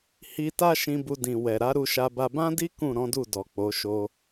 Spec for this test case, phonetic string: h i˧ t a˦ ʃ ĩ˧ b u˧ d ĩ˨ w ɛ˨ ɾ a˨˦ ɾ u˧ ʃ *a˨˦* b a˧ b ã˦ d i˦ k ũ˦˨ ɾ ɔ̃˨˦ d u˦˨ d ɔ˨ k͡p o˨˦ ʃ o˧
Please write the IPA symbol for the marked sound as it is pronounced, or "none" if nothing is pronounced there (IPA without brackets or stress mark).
a˧